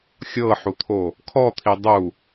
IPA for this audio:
xʲ ɤ ħ u t̪ʰ o | kʰ ɔ t̪ʰ i dˤ u

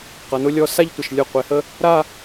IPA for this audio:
q ʌ˩˧ n ʊ˧ lʲ ɔ˧ s a˥˧ ʎ tʷ ɐ˧˩ ʃ lʲ ʊ˧˩ qʷ e˩˧ h ə˧ | ɾ a˥˧

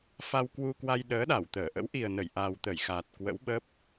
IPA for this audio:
f a˧ w k w u˧ k w a˧ j ɗ əː˨˦ ɗ a˧˩ w t̪ əː˧˩ ʔ ə̰˧˥ w ʔ i˨˩ ə̯ n ə˧˩ j ʔ a˨˩ w t̪ ə˧˩ j x aː˨˩ t̚ k w ə̰˧˥ w ɓ ə˦˥ p̚

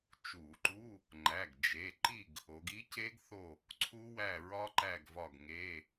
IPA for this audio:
t͡ʃ u˧˩˧ ǃ u˧˥˧ | ŋ͡ǃ æ˩˧˩ ɡ d͡ʒ e˩˧˩ ǃ i˦˨ ɡ | o˩˧ ɡ i˦˥ c e˦˥ ɡ θ o˦˨ | ǀʰ u˦˥ w æ˦˨ ɹ ɒ˦˥ ǃ æ˦˨ ɡ v ɒ˦˨ ɡ ŋ e˧˥˧

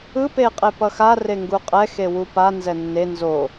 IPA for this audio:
ɯ p e qʼ e p ʌ x a r e ŋ ɡ u qʼ ɛ x e w u p a n z ɛ nː e n z o

